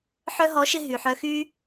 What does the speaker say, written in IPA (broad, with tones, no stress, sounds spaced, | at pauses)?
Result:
ħ œ˧ ɦ ɔ˨˦ ʃ ɪ˧ ɦ y˨ ħ œ˧ x y˦